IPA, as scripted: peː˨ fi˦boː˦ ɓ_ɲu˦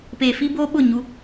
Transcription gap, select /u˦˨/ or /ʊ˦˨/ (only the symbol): ʊ˦˨